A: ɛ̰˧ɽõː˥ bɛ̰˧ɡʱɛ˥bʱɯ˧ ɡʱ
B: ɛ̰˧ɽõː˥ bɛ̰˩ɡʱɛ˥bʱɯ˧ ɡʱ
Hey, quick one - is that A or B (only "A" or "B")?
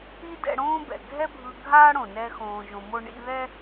B